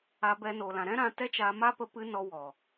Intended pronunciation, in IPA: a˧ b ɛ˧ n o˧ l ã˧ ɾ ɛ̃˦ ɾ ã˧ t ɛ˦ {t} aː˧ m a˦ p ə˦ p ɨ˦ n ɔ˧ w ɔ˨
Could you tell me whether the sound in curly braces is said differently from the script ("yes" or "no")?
yes